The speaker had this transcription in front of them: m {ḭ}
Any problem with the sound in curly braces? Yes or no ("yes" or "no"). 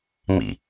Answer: no